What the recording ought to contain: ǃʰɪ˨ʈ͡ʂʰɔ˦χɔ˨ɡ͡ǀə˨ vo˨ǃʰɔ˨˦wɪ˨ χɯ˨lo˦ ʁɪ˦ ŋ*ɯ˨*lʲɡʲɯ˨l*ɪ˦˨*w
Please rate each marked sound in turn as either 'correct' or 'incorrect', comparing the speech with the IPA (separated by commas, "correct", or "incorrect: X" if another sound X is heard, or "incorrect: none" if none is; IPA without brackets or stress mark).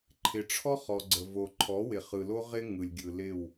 correct, correct